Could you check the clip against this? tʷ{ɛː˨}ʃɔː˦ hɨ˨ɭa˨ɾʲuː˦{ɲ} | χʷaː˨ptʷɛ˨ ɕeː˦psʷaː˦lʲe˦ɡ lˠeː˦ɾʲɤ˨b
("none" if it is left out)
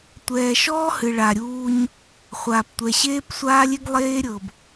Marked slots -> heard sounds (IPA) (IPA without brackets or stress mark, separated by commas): ɛː˨, ɲ